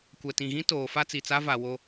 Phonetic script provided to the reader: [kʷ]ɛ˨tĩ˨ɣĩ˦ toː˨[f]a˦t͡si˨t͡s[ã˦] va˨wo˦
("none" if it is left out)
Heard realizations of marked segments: kʷ, f, a˦

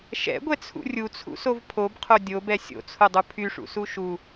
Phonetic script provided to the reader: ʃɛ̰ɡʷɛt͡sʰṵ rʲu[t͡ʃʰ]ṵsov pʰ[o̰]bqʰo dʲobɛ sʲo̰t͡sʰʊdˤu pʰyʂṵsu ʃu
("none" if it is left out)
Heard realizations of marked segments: t͡sʰ, o

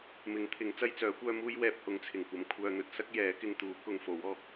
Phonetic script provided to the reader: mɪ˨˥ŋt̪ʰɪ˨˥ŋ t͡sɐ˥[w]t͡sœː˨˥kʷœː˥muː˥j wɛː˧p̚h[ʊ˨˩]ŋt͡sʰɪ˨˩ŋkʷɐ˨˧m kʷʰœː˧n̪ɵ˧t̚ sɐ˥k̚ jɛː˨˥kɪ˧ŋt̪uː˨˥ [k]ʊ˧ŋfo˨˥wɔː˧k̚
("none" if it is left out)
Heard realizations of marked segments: j, ʊ˨˥, k

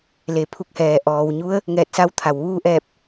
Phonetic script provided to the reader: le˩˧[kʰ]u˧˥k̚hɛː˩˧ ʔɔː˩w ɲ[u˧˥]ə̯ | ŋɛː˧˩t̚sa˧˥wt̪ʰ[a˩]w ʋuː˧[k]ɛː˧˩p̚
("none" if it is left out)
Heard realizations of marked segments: pʰ, u˧˥, a˩, ʔ

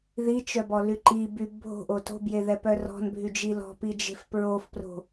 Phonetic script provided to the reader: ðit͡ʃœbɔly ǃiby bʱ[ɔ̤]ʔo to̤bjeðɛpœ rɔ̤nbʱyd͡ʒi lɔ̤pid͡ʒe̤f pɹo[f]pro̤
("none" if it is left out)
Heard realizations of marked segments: o̤, f

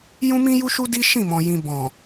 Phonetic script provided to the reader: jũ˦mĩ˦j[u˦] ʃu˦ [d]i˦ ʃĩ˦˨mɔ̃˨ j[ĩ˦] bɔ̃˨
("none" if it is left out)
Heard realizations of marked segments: u˦, d, ĩ˨

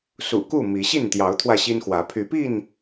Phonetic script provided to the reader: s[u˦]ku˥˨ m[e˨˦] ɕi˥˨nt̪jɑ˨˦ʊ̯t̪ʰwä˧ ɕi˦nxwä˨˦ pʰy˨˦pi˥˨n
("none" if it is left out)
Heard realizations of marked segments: ṵ˨˩, i˨˦

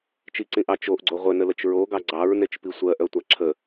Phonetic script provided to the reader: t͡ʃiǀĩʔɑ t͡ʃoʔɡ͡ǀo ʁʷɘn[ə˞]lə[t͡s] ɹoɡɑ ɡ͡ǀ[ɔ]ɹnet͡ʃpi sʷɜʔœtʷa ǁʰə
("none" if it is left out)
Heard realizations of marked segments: ə, t͡ʃ, ɑ

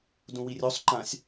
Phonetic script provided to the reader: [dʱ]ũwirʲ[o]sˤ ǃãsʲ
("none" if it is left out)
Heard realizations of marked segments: d, o

